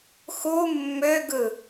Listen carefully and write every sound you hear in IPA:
x u mː ø ɡ ɯ

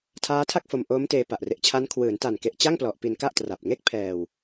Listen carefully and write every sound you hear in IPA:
tʰ aː˦˥ tʰ a˥˩ k̚ f o˧ m ʔ oː˦˥ m t eː˧ p a˨˩ ʔ r e˨˩ ʔ t͡ɕʰ a˦˥ n kʰ w ɯː˩˦ n t a˨˩ n k e˨˩ ʔ t͡ɕ a˥˩ ŋ p l ɔ˨˩ ʔ p i˧ n k a˥˩ ʔ t r a˨˩ p̚ ŋ e˥˩ k̚ pʰ ɛː˨˩ w

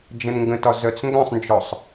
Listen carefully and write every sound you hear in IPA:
d͡ʒ ə̃ n ŋ ɡ ə̃ t ɒ z œ t͡s ŋ ɡ œ̃ sˤ n d͡ʒ ɔ sˤ

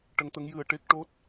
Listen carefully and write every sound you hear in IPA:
ʈ ə˧˥ ŋ t̪ ə˧˥ ŋ j ɨ˧ ə̯ ʈ e˦˥ k̚ ʈ o˦˥ t̚

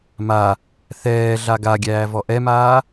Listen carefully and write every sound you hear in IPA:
m a | θ ɛː ɮ a ɡ a ɡʲ æː v ɔ ʔ ɛ m aː

